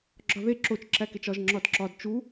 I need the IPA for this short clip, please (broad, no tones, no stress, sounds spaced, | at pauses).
ɡ͡ǁ ɒ ð e ǁ o t͡ʃ ǁ æ k e t͡ʃ ɒ ʒ ŋ͡ǁ ɒ d ǁ ɒ d t͡ʃ u